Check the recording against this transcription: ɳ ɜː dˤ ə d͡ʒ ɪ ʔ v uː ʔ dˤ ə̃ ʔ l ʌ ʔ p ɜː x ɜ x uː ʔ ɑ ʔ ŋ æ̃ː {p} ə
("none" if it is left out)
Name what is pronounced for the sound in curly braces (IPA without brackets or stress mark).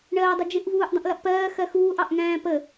p